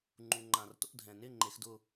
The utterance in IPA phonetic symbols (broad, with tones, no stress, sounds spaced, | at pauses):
ŋ͡ǃ u˩ ŋ͡ǃ ã˩ r t o̰˥˩ dʱ ɛ̃˩ n ɪ˥˩ ŋ͡ǃ e˩˥ x d ʊ˥˩